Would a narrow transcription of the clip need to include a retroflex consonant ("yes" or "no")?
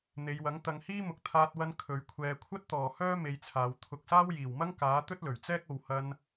no